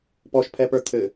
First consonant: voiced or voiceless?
voiceless